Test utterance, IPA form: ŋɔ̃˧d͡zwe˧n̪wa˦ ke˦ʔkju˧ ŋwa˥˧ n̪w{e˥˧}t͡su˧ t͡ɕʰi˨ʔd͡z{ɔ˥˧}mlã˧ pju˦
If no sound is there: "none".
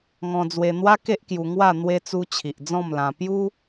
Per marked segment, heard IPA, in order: e˧, ɔ̃˥˧

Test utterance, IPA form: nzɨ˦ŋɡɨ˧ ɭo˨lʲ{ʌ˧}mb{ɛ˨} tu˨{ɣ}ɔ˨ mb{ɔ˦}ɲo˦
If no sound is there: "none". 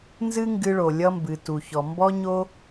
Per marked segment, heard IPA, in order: ʌ˧, ɨ˨, ç, ɔ˦

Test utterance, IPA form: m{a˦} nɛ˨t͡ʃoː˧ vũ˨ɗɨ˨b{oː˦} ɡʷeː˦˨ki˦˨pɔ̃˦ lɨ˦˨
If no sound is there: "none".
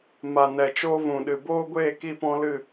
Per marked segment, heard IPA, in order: a˨, oː˦

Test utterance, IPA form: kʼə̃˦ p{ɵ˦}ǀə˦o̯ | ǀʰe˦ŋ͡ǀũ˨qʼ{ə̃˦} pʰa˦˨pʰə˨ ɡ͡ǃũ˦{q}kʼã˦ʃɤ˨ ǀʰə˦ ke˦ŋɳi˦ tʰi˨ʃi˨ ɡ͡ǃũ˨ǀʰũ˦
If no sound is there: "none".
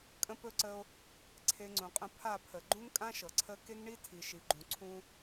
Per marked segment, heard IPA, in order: ɵ˦, ə̃˦, ŋ

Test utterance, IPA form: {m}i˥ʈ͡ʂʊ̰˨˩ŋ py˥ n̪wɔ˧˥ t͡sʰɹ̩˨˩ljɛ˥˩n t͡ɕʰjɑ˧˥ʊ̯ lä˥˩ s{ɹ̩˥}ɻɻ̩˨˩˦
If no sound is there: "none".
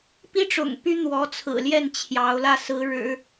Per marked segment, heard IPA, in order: p, ɹ̩˧˥

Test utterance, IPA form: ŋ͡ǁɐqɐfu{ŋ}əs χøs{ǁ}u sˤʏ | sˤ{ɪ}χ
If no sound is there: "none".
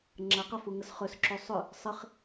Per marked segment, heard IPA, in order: ŋ, ǁ, ɪ

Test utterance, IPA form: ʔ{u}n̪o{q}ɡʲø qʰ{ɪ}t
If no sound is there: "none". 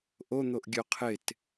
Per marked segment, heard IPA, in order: o, ʔ, ɪ

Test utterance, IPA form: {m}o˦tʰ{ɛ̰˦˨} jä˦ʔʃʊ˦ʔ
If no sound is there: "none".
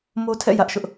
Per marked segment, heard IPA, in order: m, ɛ̰˦˨

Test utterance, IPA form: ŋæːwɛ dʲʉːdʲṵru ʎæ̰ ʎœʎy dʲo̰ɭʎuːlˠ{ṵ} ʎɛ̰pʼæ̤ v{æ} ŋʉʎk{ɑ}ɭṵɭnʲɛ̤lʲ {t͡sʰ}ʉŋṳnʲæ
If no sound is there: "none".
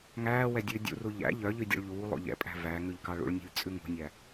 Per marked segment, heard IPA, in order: o̰, æ, ɑ, t͡sʼ

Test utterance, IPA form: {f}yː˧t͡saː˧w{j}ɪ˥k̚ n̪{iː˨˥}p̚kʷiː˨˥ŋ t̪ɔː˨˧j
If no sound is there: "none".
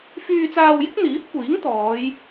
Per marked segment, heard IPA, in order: f, j, iː˨˥

